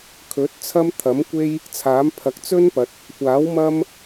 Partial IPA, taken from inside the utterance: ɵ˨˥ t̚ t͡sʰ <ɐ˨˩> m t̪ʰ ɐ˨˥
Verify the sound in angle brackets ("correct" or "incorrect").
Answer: incorrect